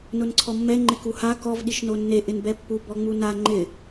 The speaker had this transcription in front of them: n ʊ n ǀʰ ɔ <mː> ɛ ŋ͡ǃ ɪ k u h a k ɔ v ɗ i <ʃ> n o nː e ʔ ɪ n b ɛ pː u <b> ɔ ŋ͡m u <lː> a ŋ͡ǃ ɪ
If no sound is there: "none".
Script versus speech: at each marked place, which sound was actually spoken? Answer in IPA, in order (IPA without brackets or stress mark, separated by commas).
mː, ʃ, b, n